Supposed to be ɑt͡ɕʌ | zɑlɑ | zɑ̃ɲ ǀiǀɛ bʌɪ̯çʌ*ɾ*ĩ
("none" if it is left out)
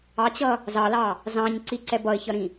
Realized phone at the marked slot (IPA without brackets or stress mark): ɾ